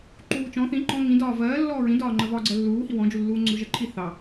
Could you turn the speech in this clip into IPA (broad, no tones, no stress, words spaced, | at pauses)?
ǃuːt͡ʃɔ̃ θĩ ǃɔ̃ ŋĩdɒː vɜː lːɔːɹĩdɒːŋ͡ǃɜ vɒːɡ͡ǀɜlːuːhi wɔ̃d͡ʒulːuː ŋ͡ǀʊɾuʒɜǃʰi θɑ